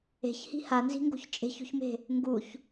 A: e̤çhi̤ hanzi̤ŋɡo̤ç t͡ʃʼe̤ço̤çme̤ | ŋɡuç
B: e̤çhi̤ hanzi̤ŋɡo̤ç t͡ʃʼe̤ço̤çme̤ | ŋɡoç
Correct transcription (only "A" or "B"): A